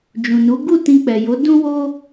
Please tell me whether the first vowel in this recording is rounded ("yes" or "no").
yes